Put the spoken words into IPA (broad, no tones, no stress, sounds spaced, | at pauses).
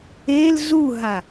e l z u ɦ a